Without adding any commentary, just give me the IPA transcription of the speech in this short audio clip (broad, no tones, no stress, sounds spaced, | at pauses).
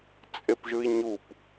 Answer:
t͡sʼ e p ʒ ɯ i̯ ɲ u p